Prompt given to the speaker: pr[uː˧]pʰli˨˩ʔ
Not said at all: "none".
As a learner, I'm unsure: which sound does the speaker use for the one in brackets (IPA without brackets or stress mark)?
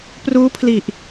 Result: uː˦˥